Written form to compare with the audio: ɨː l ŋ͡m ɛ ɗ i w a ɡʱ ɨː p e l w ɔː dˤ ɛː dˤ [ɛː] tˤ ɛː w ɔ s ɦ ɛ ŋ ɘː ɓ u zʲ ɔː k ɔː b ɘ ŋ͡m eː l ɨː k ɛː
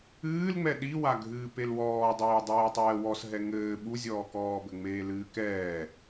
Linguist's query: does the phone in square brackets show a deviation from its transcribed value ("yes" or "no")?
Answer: no